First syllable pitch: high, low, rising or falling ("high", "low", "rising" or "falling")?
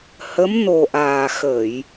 rising